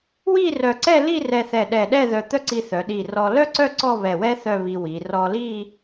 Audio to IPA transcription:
w i˥˧ r œ˧˩ ǀ ɛ˥˧ l i˥˧ r ɛ˧ θ ɛ˧˩ ɗ ɛ˧˩ ɗ ɛ˥˧ ð œ˧˩ t̪ œ˥ ǀ i˧ θ œ˩˧ ɗ i˧˩ r ɔ˧ l œ˥ ǀ œ˥˧ ǀ ɔ˥˧ β ɛ˧˩ w ɛ˥ θ œ˥˧ β i˧ w i˩˧ r ɔ˧ l i˥˧

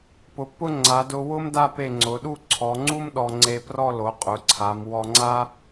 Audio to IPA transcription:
p ʊ˩˧ pː ʊ˥˧ ŋ͡ǀ a˩˧ d ʊ˧ w ʊ˥ m d a˥˧ p e˧˩ ŋ͡ǀ ʊ˩˧ ɗ u˥˧ ǀʰ ɔ˩˧ ŋ͡ǀ u˥ m ɗ ɔ˧ ŋ͡ǀ e˧ p r ɔ˥˧ l o˩˧ qʼ ʊ˩˧ ǀʰ a˩˧ m w ɔ˧ ŋ͡ǀ a˥

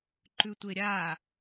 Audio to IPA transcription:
ǃ ʉ tʷ e ɾʲ a

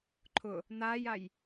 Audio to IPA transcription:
ǃʰ ʊ | n̪ aː j a j

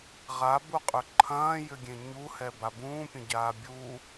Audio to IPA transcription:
ʁ a b u qʼ ʏ ǃʰ ɐ̃ː j ʏ ɡʲ ẽ ɲ u h ɛ b a b ũː pʲ ɐ̃ ɟ aː bʲ u

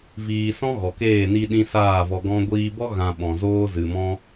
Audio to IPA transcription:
v iː˧ s ɔ̃˦ ɣ ɔ˨ k eː˦˨ n i˦ ɗ ĩ˦ s aː˦˨ v ɔ˧ ɡ ɔ̃˦ ɡʷ iː˧ b ɔ˦ ɣ ã˧ ɓ ɔ̃˨ z oː˦ z ɨ˨ m ɔ̃˦

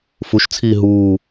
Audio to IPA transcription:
f u ʃ t͡sʰ iː ɦ uː

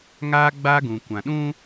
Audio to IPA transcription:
ŋ aː˦ ɡ͡b a˦ ɡ ũ˨ kʷ ã˨ ɗ ũ˦

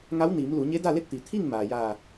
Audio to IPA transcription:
ŋ a˧˥ w n iː˩˧ m l u˩˧ ɲ e˧˥ d a˥˨ l e˥˨ t̚ t̪ i˩ t̪ʰ i˥˨ ŋ m aː˩ j aː˧˩

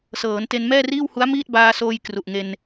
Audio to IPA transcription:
s ɤː˩˦ n t e˧ n m ɛː˥˩ r iː˥˩ w h u˦˥ a̯ m iː˥˩ t̚ b aː˧ s oː˧ j k r u˨˩ ʔ ŋ e˧ n

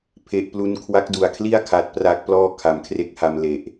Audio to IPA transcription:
pʰ e˦˥ ʔ p l u˥˩ n kʰ w a˦˥ k̚ d u˨˩ a̯ kʰ l i˥˩ a̯ kʰ a˨˩ t̚ p r a˦˥ k̚ p l ɔː˥˩ kʰ a˩˦ m kʰ r e˦˥ k̚ h a˧ m l e˨˩ ʔ

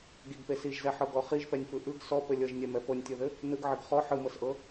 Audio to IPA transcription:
ɡ i ɡ p e s i ʒ z ɛ ħ ɤ ɡ ɔ χ i ʒ p ɛ nʲ f ɯ ʔ ɯ ɡ s ɔ p ɘ lʲ ɤ ʒ nʲ ɛ m ɛ f ɤ nʲ tʲ ɤ ð ɘ | n ɯ ɡ ʕ ɘ ɡ χ ɔ ħ ɯ m ɤ s ʔ ɤ

